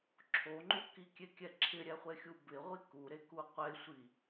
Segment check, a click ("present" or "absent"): present